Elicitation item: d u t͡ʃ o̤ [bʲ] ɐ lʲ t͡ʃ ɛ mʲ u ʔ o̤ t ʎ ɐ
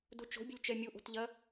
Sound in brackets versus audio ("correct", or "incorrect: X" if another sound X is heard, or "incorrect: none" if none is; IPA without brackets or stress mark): correct